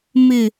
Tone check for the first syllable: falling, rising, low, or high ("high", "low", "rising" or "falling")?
low